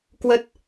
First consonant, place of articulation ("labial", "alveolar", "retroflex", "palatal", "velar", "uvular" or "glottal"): velar